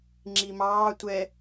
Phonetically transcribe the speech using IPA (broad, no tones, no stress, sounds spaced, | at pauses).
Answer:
ŋ͡ǁ i m ɑː tʷ ɛ